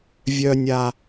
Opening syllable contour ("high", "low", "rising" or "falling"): low